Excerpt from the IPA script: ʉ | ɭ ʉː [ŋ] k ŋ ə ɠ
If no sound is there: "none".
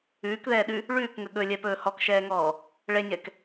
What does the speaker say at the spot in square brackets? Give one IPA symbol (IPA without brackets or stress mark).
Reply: none